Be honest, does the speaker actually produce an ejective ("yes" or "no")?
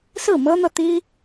no